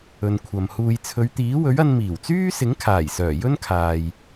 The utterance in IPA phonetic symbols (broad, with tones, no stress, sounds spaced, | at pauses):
ɵ˨ n kʷʰ ɐ˨ m h uː˨ j t͡sʰ ɵ˨˧ ɥ t̪ iː˨˥ w ɵ˨˥ ɥ ɐ˧ n m iː˨˩ w t͡s yː˥ s ɪ˨˥ ŋ kʰ aː˨˩ j s œː˨˩ j ɵ˥ n kʰ aː˨ j